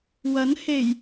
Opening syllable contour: rising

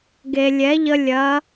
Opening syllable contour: low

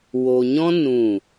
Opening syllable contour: low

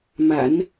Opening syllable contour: low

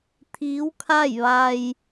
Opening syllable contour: rising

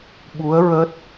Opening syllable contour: rising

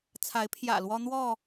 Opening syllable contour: rising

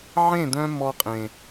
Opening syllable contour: falling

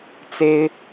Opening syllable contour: high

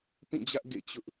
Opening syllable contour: falling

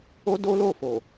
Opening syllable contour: high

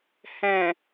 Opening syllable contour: low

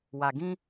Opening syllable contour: low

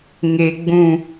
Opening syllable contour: low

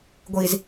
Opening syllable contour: low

